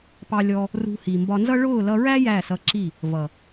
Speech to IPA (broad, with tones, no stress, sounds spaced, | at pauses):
p ɑ˧ lʲ ɔ˧ | r ṳ˧ h i˨ m b ɒ˧ n z ʌ˦ ɭ ʊː˦˨ l ʌ˧ ɹ æ˦ j æ˦˨ s ʌ˧ ǁ i˦˨ | v ʌ˨